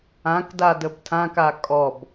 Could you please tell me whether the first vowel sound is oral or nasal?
nasal